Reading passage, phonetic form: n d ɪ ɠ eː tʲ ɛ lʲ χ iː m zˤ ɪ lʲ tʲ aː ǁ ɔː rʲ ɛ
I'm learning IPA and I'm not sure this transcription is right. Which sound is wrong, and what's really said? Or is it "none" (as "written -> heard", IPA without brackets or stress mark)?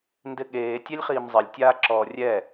none